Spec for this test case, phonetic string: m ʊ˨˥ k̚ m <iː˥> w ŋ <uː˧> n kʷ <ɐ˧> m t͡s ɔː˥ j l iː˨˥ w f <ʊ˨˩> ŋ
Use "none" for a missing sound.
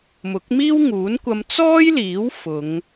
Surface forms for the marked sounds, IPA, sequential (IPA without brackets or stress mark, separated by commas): iː˥, uː˨˥, ɐ˧, ʊ˨˧